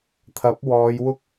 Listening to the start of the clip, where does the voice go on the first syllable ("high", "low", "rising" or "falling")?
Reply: rising